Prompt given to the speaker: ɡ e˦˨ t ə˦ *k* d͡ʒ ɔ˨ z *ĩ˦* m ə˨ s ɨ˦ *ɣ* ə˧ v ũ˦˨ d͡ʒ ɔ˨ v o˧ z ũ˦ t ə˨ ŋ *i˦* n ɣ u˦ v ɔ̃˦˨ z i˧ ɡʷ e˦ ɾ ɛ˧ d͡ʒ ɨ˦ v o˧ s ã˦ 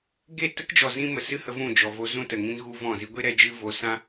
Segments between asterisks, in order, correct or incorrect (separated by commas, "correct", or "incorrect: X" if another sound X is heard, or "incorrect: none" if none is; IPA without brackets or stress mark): correct, correct, incorrect: h, incorrect: ĩ˦